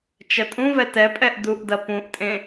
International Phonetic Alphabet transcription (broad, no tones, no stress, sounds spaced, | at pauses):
t͡ʃ ɐ tʼ ũ v ɛ t ɛ pʼ ɛ ʔ d u ʔ d ɐ p ũ ʔ tʼ ẽ